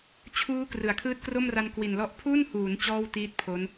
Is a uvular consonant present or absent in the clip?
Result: absent